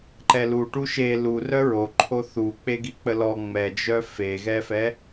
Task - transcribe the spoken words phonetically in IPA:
ǃɛluʈu ʃe lu rœɹoǃʰo θu k͡peɡik͡pəlɔ ŋ͡mɛd͡ʒœ feɣɛfɛ

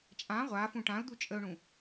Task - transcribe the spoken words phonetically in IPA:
t͡ʃʼã ʁʷafũ ʈãʊ̯d̪u t͡ʃʼəʊ̯ɳũ

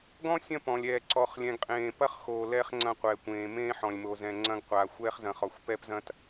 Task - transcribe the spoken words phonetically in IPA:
ɡɔ̃˦ sʲɐ̃˦pɔ̃˨lʲɛː˨ ǀɔ˨χlʲɛ̃˨ɡqʼẽː˨ pɐ˦χ xoː˨lɛː˦χŋ͡ǀɐ̃˦˨ qʷɛː˨kʷẽː˨ mẽː˦ħɔ̃˨lʲmo˨zɛ̃˨ ŋ͡ǀɐ̃˦ɡqʷaː˨ xʷɛː˦χzɐ̃˨χɔ˨xʷ pɛː˦pzɐ̃˦t

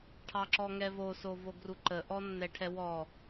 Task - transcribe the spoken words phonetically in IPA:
ʈʰɑǁɔŋɛvo sovoɡruǃə ʔɔnːɛʈʰɛwɔ

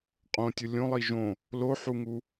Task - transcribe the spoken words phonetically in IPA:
qʼõtʲʊ lʲõlˠi ʒõ | loħuŋu

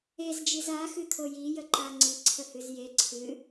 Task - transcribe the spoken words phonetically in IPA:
ezd͡ʒiz axɨt̪ʰo jijəǃa ŋ͡ǀiǀʰəhɨz je ǀʰɨ

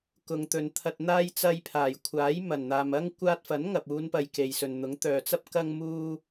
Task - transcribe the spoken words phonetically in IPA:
kʊ˨ŋt̪ɵ˨n t̪ʰɐ˨t̚n̪aː˧j t͡sɐ˧jpʰaː˨˩jkʷʰaː˨˥j mɐ˨˩nn̪aː˨m ɐ˥ŋ kʷaː˧t̚fɐ˨˥n ŋɐ˨p̚uː˨˧npɐ˨j ke˨jsɵ˨n n̪ʊ˨˥ŋt̪œː˨t͡sɐ˥p̚ kɐ˧ŋmuː˧

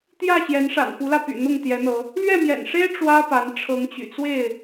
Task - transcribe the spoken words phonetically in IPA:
t̪jä˥˨ɕjɛ˨˦nʂa̰˨˩n pu˨˦lä˧py̰˨˩ n̪ʊ˥˨ŋt̪jɛ˨˦n̪ɤ˨˦ | lɥɛ˥˨mjɛ̰˨˩nʂe˦ɪ̯ ʈ͡ʂwä˦pa˨˦n ʈ͡ʂʰɤ˨˦ŋt͡ɕy̰˨˩t͡swe˥˨ɪ̯

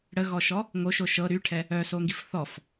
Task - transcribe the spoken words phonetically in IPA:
ɽəɣɔʃɔ | ŋoʃoʃ ɤ ɾyʈʰɛ | œsoŋɡif θɔf

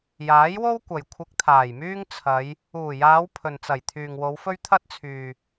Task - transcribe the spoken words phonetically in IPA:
jaː˨˥jwo˥w kʷɐ˨j kʷʰɪ˧k̚t̪ʰaː˨˩jmyː˥ŋ t͡sʰɐ˨˧j | uː˨˩jaː˨˧w pʰɵ˨nt͡sɐ˨˩j t̪ʰyː˨ŋwo˨˧wfɵ˥ɥ t̪ʰɐ˥t̚t͡sʰyː˨

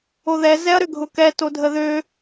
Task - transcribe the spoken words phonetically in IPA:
oðɛ zɛɐ̯ɾʏɡʱʊkɛ todʱəðø

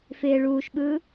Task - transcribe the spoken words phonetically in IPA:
fɪː ɭuːʃɓɯː

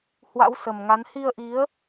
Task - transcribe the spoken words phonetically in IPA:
hwa̰˧˥wsə˨˩mŋa˨˦n hi˧ə̯ʔi˨˦ə̯

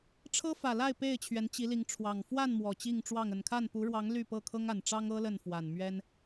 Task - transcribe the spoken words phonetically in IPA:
ʈ͡ʂʰɤ˦fä˨˩la˥˨ɪ̯ pe˥˨ɪ̯t͡ɕʰɥɛ˨˦n t͡ɕi˨˦li˨˦ŋʈ͡ʂʰwɑ˨˩ŋ fwa˥˨n mwɔ˨˩t͡ɕi˥˨ŋʈ͡ʂwɑ˥˨ŋ ə˨˩nkʰa˥˨npu˨˦ɻwɑ˨˦ŋ ly˥˨pɤ˥˨ kʰɤ˦ŋa˨˩nʈ͡ʂɑ˦ŋɤ˦ lə˥˨nfwa˨˩nmɥɛ˦n

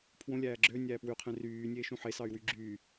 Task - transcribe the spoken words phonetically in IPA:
pʰwõlʲæː ɡ͡ǁø nʲæːpwyqʰẽ ryː nʲeːʃũħesɑy̯ wyɡ͡ǁyː

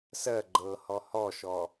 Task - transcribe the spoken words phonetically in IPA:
sɜ ɡ͡ǃɤ hɔhɔʃɔ

